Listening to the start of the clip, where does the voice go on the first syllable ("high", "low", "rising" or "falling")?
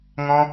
high